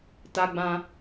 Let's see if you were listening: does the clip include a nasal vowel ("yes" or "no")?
yes